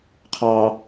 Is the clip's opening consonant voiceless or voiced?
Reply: voiceless